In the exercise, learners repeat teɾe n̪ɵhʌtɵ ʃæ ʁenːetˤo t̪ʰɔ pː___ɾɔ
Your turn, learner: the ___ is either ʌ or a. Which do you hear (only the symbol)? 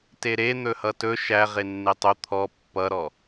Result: ʌ